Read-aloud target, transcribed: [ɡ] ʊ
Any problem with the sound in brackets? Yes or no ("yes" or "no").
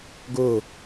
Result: no